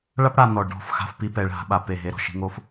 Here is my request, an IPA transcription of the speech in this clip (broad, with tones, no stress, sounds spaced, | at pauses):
ɭ a˦ p ɽ a˨ n̪ ɔ˨ ɖ ɔ̤˦˨ f x a̤˧ f p i˧ p ɛ˨ ɭ ɦ a̤˧ ɓ a˧ p e˦˨ ɦ e˦ ɾ ɔ̤˨ ʃ i̤˦ ŋ o˦ f